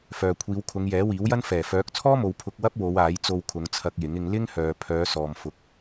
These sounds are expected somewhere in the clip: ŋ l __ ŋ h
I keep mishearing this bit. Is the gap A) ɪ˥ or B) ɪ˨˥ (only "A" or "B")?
A